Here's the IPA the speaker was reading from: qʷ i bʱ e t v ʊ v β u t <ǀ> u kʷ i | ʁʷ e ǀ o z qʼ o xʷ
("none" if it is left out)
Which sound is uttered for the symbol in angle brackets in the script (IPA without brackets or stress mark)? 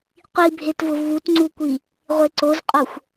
ŋ͡ǀ